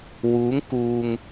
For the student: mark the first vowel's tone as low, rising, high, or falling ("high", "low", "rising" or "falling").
rising